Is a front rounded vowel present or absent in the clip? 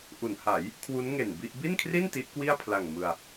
absent